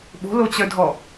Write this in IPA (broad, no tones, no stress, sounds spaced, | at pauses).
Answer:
ɓ o̤ l o t͡ɕ œ dʱ ɔ